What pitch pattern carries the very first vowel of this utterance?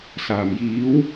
low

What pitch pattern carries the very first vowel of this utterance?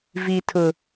high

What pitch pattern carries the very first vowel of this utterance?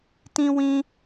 high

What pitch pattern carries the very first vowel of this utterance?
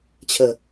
low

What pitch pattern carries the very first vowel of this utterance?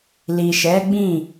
low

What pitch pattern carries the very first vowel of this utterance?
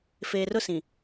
low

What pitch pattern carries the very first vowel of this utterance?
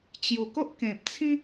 low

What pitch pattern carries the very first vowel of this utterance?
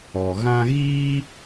low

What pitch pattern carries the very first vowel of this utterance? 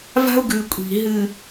high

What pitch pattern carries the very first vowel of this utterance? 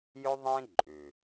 high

